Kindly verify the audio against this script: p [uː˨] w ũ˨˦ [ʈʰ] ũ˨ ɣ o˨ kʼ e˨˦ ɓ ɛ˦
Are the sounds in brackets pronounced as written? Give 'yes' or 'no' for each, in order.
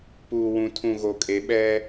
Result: yes, no

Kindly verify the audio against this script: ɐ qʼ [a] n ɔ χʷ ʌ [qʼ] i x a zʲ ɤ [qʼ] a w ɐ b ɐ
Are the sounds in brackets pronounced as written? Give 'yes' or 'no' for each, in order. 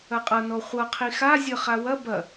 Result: no, no, no

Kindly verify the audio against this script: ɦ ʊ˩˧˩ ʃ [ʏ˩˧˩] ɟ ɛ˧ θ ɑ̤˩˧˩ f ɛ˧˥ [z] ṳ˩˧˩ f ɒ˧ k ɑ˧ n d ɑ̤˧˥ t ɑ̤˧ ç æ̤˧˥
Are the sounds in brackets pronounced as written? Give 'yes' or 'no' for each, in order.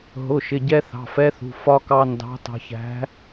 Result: no, no

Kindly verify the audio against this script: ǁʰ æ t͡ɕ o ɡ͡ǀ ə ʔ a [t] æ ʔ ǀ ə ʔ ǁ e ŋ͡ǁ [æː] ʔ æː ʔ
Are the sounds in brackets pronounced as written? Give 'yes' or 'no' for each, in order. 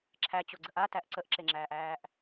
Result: yes, yes

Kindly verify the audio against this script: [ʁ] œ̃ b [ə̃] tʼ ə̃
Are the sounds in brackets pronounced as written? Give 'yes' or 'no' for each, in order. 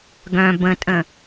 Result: no, yes

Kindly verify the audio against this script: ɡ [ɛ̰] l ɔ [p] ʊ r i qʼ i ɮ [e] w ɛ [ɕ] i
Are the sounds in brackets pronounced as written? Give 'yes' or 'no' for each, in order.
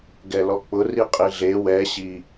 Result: no, no, yes, yes

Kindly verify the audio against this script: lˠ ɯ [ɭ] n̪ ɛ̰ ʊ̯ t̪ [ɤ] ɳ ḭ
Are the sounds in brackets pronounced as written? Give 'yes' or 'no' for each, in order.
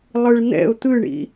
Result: yes, no

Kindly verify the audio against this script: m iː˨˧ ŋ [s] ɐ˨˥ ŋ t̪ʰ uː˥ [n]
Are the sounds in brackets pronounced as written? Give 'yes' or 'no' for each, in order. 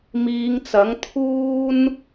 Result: no, yes

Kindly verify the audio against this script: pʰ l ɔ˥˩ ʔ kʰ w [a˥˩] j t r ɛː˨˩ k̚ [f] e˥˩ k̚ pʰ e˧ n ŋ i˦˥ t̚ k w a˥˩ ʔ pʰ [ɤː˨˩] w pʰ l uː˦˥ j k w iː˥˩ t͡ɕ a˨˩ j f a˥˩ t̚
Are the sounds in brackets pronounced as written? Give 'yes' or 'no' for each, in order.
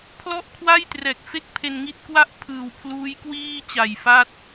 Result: yes, yes, no

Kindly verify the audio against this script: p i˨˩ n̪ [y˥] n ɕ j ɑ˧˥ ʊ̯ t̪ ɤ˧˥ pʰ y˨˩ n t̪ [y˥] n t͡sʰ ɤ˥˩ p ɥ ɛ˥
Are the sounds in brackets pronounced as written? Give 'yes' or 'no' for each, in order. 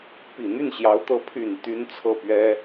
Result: no, yes

